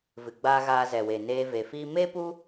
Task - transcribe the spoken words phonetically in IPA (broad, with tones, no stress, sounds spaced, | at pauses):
v ɨ˨ ɡ͡b aː˧ ɣ aː˧ z ɛ˨ w e˨ n eː˧ v e˨ f iː˦ m e˦ p u˦